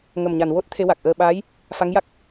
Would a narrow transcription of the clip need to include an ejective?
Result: no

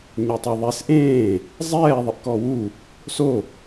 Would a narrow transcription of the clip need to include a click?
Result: no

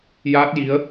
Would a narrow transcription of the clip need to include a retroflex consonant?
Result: no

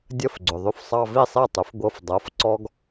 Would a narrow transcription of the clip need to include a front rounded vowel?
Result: yes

